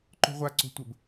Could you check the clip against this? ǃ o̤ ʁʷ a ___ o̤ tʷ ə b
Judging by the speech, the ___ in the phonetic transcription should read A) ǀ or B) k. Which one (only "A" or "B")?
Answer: A